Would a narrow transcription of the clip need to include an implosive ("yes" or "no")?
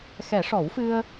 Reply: no